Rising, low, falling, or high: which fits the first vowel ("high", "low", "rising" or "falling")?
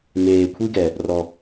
low